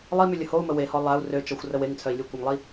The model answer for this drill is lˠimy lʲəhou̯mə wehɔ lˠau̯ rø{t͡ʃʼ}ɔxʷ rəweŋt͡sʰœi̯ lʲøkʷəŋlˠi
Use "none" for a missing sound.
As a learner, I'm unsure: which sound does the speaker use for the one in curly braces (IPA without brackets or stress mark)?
t͡ʃ